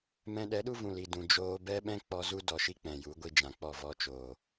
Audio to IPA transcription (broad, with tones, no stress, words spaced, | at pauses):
mɛ̃˧ɗɛ˨˦ɗu˦ vũ˨li˨ dũ˨ d͡ʒoː˧bɛ˦ɓɛ̃˦ k͡pɔ˧ zu˦dɔ˨ʃi˦ k͡pɛ̃˨ju˨˦ ɡʷi˧d͡ʒã˨k͡pɔ˦˨ vɔ˧t͡ʃoː˨